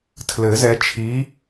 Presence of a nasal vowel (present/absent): absent